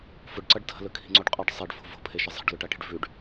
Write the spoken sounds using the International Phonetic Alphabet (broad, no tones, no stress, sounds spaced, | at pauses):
f ʊ ɖ ǀ ʌ ɖ tʰ ə̤ l ɵ kʰ i̤ ŋ͡ǀ o ɖ qʼ ə ɖ sˤ e ɖ f o̤ v o̤ pʰ e ʃ ə zˤ e̤ ɖ l ʊ ʈ a ʈ i̤ ɖ v ʉ ɖ